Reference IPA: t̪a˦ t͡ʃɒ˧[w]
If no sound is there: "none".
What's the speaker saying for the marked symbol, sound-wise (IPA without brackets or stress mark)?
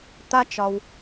w